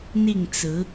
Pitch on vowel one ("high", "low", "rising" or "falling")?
falling